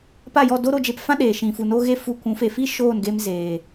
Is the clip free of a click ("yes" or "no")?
yes